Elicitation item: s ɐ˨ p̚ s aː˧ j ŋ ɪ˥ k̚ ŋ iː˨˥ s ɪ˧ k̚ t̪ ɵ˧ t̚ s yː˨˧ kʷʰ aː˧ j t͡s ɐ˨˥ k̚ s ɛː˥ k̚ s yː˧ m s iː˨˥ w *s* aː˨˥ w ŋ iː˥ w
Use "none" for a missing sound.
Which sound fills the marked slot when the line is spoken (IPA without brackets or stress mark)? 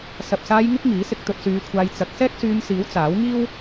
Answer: t͡s